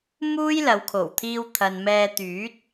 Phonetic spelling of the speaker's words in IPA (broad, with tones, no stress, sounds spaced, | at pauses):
m uː˥ j l ɐ˨˧ w kʰ o˨˩ w t̪ʰ iː˧ w t̪ʰ ɐ˨ n m ɛː˧ t̪ yː˨˥ t̚